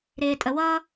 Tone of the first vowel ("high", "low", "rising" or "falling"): low